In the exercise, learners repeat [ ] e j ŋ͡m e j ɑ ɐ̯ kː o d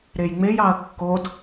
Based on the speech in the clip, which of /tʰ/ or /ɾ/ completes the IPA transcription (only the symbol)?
ɾ